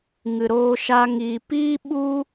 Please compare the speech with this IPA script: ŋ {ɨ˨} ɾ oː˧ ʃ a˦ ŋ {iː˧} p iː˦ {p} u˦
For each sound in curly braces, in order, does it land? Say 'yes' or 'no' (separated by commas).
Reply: yes, yes, no